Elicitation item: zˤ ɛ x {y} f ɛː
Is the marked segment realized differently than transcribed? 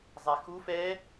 yes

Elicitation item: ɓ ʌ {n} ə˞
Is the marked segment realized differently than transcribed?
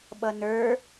no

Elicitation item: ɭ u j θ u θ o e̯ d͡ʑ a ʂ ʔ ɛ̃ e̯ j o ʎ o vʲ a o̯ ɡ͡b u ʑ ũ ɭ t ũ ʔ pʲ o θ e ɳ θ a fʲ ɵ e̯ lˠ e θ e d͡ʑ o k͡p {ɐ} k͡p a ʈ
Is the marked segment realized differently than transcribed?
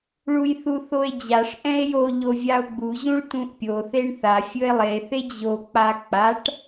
yes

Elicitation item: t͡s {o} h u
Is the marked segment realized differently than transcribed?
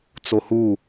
no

